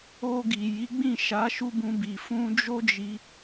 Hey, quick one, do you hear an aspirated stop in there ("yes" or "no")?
no